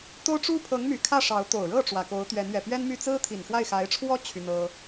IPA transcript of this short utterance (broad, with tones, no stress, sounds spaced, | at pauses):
t̪ o˥ ʊ̯ ʈ͡ʂ u˥ pʰ ɤ˧˥ ŋ m y˨˩ kʰ ä˥˩ ʂ ɑ˧˥ ʊ̯ t̪ o˨˩ ʊ̯ ɻ ɤ˥˩ ʈ͡ʂ w ä˨˩ k o˧˥ ʊ̯ t̪ ɥ ɛ˧˥ n ɥ ɛ˨˩ p ɥ ɛ˥ n m y˥˩ t͡s ɹ̩˥ t̪ʰ i˨˩ n x w a˥˩ ɪ̯ x a˧˥ ɪ̯ ʈ͡ʂʰ w ɔ˥ t͡ɕʰ y˥ n̪ ɤ˥